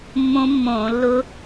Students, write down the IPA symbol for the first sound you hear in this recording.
mː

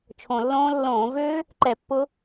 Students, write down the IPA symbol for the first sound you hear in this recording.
t͡ʃʰ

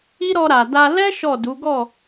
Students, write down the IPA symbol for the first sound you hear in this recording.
i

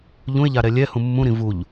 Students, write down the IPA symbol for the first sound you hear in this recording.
ʎ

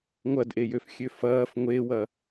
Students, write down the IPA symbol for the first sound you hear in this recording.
ŋʷ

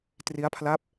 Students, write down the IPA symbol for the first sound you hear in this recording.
t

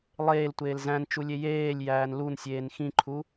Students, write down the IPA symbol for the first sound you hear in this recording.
lˠ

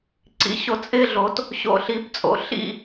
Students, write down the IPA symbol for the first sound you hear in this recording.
ǀ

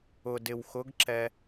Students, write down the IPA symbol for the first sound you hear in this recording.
ʊ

